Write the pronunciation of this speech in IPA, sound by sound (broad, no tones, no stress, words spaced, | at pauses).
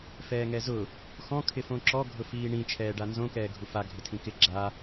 fɛːŋɛzʊ | xɔ̃ kʰɪfõǁɔ ɡʱʊfiːɳĩ t͡ʃʰɛːɖanzõ kɛːɡʱufa ɡʱɪtʰĩkɪ ɡ͡ǁa